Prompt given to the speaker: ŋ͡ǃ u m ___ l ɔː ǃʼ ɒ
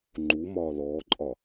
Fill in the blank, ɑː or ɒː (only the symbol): ɒː